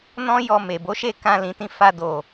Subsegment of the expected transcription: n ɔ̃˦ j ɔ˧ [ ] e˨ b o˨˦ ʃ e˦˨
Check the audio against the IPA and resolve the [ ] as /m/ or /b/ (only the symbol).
m